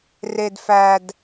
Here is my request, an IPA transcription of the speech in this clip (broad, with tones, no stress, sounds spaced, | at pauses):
r e˧ d f æ˧ d